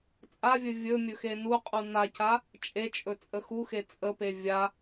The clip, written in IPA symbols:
t͡sʼ a vʲ ɵ vʲ ɵ mʲ ɵ x e n u qʼ u n a c a | t͡ʃʼ e t͡ʃʼ ɵ t͡sʼ ə x u x e t͡sʼ ə p e vʲ a

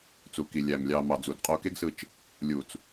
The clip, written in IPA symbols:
t͡s u˨ k i˨ lʲ æ˨ m lʲ ɑ˨ m ɑ˨ d͡z u˨ d qʼ o˧ k e˦ ɡ s ɯ˧ t͡ʃ | lʲ u˨ t͡s

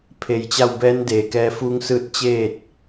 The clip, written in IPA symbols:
pʰ e˧˩ j t͡ɕ a˥˨ w b ɛː˧˥ n d eː˩˧ k ɛː˧ f uː˧˥ ŋ s ɯː˧˥ t̚ t͡ɕ eː˥˨ t̚

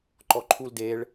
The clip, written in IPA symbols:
ǃ ɔ ǃʰ u l d e ɭ

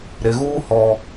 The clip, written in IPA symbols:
ɾ ɪ˨ ɣ uː˦ h ɔ˦

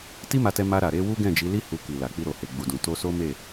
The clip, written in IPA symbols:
t i˦ m a˧ t ɛ˧ m a˧ ɾ a˨ ɾ e˧ w u˦ ɡ ɛ̃˦˨ d͡ʒ i˨˦ l i˦ h u˧ k i˨ l a˨ k͡p i˧ ɾ o˨ h e˨ ɡ͡b u˨ d ũ˨ t o˧ s o˦ m e˦˨

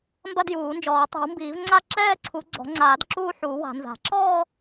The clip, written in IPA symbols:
m b ɐ˥˧ d j uː˨˩˦ n d͡ʒ ɔː˨˩˦ tˤ i̤˨˩˦ w m b iː˨˩˦ v ŋ͡ǀ a˥˧ ǁ ɛː˥˧ ǀʰ u˨˩˦ ɡ͡ǀ ɔ̤˨˩˦ ŋ͡ǀ aː˨˩˦ d ǁ uː˥˧ ħ uː˨˩˦ w a̤˨˩˦ n z a̤˨˩˦ ǁ ɔː˥˧

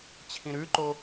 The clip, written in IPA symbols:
t͡ɕʰ ĩ ɾ ʉ ǃ o

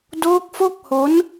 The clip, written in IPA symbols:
d oː˦˥ k̚ f o˥˩ k̚ h o˦˥ n

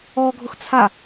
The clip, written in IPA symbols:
ɔ ɡʱ ʊ x t͡sʰ a

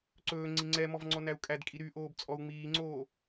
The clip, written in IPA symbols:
ǀ ɵː ŋ͡ǀ i ŋ͡ǀ ɛ m ɔ v ŋ͡ǀ ɔ n æ u̯ kʼ æ d kʼ i ɾ y ʔ oː b t͡sʼ ɔ u̯ ŋ͡m iː ŋ͡ǀ oː

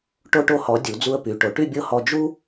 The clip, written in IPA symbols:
ʈ o˧ ʈ o˧ h ɔ˩˧ dʲ u˩˧ d͡z u˧ ə̯ p y˩˧ ʈ o˩˧ ʈ y˥˧ bʲ ɤ˥˧ h ɔ˧ d͡ʒ u˥

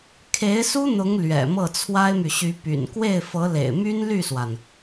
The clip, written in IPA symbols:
kʰ e˧˥ ɪ̯ s u˥ n̪ ʊ˧˥ ŋ l ɥ ɛ̰˨˩ m ɤ˥˩ t͡sʰ w a˥ ɪ̯ m y˨ ɕ y˧˥ p y̰˨˩ n k w e˥˩ ɪ̯ f ɤ˧˥ l ḛ˨˩ ɪ̯ m y˥ n l y˥˩ s w a˩ n

